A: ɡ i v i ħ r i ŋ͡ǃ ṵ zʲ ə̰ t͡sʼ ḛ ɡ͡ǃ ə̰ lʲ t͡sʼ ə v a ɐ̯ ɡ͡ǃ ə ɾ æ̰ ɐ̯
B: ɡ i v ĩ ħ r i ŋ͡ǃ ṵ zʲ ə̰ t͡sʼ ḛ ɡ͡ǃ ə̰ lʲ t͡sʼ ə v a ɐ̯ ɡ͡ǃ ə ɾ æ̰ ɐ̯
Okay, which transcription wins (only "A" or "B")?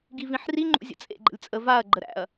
B